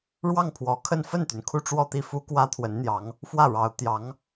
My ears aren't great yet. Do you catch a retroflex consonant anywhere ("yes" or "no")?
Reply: yes